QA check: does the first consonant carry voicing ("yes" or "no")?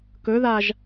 no